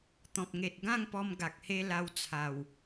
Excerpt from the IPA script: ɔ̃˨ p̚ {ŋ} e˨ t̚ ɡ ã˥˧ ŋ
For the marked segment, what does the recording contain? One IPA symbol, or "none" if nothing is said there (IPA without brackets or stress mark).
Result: ŋ